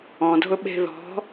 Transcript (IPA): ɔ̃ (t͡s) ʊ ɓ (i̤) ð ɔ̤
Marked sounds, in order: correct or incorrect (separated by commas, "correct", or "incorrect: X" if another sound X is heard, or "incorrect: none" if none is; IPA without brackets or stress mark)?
incorrect: dʱ, incorrect: e̤